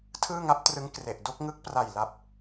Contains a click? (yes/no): no